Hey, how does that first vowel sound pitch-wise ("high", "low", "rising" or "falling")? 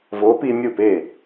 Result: rising